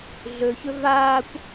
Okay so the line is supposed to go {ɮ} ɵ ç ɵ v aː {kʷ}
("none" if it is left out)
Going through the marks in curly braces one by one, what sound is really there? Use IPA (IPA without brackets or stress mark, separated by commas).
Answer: ɮ, kʷ